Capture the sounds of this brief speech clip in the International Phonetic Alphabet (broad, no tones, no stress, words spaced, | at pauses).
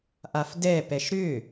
ʔafdɛpɛʃ ɾʏ